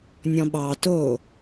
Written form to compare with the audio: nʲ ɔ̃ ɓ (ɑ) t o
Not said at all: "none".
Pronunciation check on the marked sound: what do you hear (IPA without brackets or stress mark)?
ɑ